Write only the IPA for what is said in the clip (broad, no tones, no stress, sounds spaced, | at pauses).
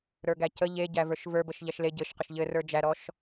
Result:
ɾ ə˞ ɡ æ c ə ʎ e ɟ æ v ə˞ ʃ v ə˞ b ə ʃ ʎ æ ʃ l e ɟ ɘ ʃ q ə ʃ ʎ ɘ r ə˞ d͡ʒ æ ɾ ɔ ʃ